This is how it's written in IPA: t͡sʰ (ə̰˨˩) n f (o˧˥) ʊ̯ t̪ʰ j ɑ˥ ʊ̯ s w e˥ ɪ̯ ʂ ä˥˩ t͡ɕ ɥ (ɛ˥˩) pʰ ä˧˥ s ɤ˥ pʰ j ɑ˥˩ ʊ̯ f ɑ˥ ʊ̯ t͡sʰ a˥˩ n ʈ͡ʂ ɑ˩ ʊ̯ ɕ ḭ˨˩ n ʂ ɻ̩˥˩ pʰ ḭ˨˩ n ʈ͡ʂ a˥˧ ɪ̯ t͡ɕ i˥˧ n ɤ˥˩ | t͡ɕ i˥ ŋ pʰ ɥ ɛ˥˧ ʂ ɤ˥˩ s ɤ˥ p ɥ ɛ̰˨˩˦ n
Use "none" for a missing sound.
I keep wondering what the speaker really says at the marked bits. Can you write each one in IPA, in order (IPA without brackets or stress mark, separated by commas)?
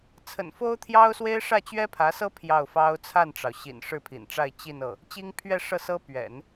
ə̰˨˩, o˥, ɛ˥